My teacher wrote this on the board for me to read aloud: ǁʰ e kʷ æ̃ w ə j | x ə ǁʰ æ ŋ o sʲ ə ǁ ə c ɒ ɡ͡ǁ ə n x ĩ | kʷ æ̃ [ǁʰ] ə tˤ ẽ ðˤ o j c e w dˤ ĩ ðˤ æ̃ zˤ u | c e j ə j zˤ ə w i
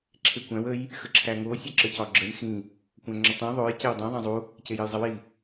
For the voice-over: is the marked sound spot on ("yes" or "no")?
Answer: no